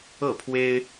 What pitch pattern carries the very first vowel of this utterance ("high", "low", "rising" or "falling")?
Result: falling